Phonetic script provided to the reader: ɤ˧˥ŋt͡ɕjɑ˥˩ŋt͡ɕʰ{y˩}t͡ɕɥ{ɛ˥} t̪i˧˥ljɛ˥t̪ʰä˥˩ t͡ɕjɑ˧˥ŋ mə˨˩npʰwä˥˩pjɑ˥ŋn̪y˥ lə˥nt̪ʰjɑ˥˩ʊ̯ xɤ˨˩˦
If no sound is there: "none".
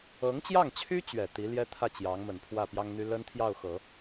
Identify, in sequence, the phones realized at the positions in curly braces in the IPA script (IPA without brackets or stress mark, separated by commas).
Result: y˥, ɛ˨˩